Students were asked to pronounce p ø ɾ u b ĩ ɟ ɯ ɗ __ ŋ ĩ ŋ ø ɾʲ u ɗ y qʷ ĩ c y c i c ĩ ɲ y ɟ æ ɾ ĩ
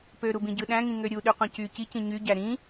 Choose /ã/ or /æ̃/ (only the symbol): æ̃